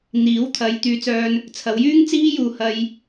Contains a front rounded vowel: yes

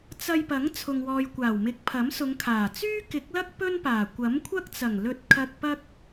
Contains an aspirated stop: yes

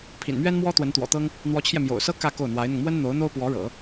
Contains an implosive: no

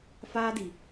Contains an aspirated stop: no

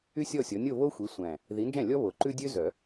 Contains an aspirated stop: no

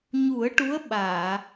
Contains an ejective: no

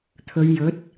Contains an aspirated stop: yes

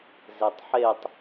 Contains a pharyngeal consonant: yes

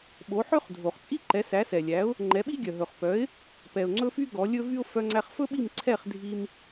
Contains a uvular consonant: yes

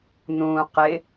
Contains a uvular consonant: yes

